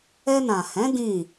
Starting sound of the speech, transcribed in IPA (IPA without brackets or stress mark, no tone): ɛ